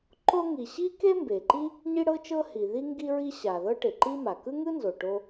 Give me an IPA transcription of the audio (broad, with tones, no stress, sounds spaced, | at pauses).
ǃ o˥ ŋ i˩ ɕ i˥ k e˥ m b e˩ ǃ i˥ | ɲ i˥ ɽ ɤ˥ t͡ʃ ɤ˥ h i˩ ð i˥ ŋ ɡ i˥ ɹ i˥ ɕ a˩ ð ɤ˥ ʈ e˩ ǃ i˥ m a˩ k ɯ˥ ŋ ɯ˥ n z o˩ ʈ o˥